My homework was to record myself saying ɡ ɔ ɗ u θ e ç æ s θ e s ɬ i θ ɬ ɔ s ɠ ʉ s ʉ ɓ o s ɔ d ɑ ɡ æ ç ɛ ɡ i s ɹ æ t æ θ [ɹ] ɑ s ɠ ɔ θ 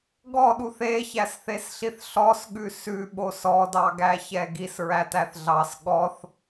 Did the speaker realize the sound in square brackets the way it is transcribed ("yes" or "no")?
no